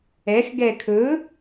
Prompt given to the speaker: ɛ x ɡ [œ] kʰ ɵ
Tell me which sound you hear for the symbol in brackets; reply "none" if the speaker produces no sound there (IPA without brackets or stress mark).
ɛ